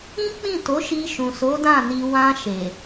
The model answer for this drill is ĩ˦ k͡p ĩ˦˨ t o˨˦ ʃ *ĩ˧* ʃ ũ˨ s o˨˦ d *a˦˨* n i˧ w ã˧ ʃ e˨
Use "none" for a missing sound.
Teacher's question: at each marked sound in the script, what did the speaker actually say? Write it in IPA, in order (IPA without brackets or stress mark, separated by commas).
i˧, ã˦˨